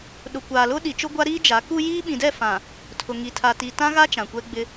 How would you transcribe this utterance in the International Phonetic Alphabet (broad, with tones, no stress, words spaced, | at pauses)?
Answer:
ɗʊ˨kʷaː˨ lʊ˦ ɗi˨t͡ʃʊ˦ɡʷa˦ ɾiː˦d͡ʒa˨˦ ku˦ jiː˦ɓĩ˨dɛ˦˨ fã˨ | tʰʊ˨ŋi˨tʰa˨ tiː˨tã˦ɣa˦ t͡ʃã˨kʷɛ˦ɡ͡bɪ˦